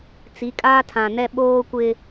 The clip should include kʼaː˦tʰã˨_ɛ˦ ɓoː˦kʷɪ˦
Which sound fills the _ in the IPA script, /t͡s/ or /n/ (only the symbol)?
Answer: n